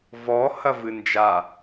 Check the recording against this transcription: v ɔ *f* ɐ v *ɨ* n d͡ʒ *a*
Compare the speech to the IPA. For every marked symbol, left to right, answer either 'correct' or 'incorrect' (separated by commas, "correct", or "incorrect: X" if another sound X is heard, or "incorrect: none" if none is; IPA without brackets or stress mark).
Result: incorrect: h, correct, correct